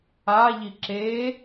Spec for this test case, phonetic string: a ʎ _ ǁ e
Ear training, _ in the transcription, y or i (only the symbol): i